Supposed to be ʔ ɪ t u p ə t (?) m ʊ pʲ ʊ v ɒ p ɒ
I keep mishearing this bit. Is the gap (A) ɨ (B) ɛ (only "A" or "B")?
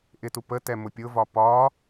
B